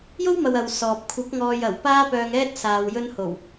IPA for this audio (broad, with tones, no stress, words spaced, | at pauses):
jo˥wmɐ˨w ɐ˧wsɔː˨p̚ kʷʰɐ˨˥k̚ŋɔː˨j ɐ˨˩wpaː˥ pœː˧ŋɛː˥t̚ saː˨wjɵ˥nho˨˩w